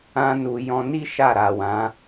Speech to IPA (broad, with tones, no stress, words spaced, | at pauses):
ã˦nu˧ jɔ̃˧ni˦ ʃa˦˨ɾa˨wã˨˦